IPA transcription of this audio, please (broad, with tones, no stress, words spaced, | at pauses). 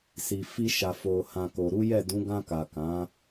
si˨fi˧ ʃa˨ fo˨hã˨ ko˨ɾu˨˦jɛ˦˨ dũ˨˦ ɡã˧ka˨ kã˨˦